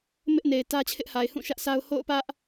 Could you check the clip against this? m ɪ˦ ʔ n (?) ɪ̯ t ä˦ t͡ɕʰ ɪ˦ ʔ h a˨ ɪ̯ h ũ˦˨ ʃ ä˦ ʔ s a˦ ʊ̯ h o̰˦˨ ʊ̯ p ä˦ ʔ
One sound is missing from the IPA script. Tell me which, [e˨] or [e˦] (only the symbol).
e˨